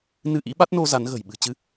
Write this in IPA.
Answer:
nɨ˧ʔḭ˧˥ɓa˦˥t̚no˧ za˨˦nɣə̤˨˩j ɓɨ̤˨˩t͡ɕɨ˧

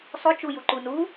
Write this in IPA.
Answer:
sˤo t͡ʃu juǃunu

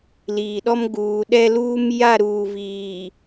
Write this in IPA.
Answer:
liː˨ɗɔ˦m ɡuː˨ɗɛ˦luː˦m ja˦˨ɾuː˨viː˨

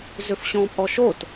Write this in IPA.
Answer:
zʏfɕɔ̃pʼɔʃot

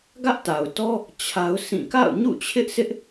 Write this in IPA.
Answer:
ɡä˦ʔta˨ʊ̯tɔ˦ | t͡ɕʰa˦ʊ̯sĩ˦˨ ka̰˦˨ʊ̯ɲṵ˦˨t͡ɕʰɪ˦ʔsʰɪ˦ʔ

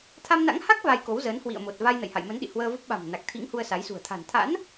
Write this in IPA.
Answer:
t̪ʰa˧mna̰˧˥ŋha˦˥k̚ va˧jko˨˦wzəː˨˦n hwḭ˧˨ə̯mo˨˩t̚ va˧jnə̰˧˨jha̰˧˨jmə˨˦n ɗḭ˧˨hwəː˧və˦˥p̚ ɓa̤˨˩m na˨˩k̚t̪ʰḭ˧˥ŋ hu˧ə̯sa˨˦jsṳ˨˩ə̯ t̪ʰa̤˨˩n t̪ʰa̰˧˥n

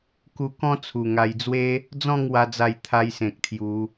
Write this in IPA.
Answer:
ku˧kɔ̃˦ t͡sʰu˨˩ŋa˧j d͡zwe˦ | d͡zɔ̃˥˧ŋ wa˦d͡za˥˧j t̪ʰa˦jsẽ˨k̚t̪ʰju˨˦

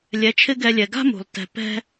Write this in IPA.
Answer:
lʲɛ˩˥t͡ʃʰɪ˥ɡɛ˧lʲɛ˩ ɡa̤˥mṳ˩lˠ tɛ̤˩ pɛ̤˧

